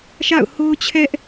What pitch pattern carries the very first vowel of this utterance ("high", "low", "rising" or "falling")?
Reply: falling